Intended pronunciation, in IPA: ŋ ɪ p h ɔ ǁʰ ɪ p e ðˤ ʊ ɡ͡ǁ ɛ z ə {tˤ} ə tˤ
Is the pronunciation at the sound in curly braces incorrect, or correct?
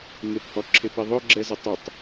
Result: correct